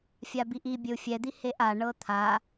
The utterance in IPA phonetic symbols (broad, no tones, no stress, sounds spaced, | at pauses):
fʲ a b i ʔ i bʲ ɘ u̯ fʲ ɛ d̪ i h e ʔ a ɳ ɤ t̪ʰ a